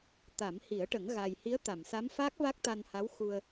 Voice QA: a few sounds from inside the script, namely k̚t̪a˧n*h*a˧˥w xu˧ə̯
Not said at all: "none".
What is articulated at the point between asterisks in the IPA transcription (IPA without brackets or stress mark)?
h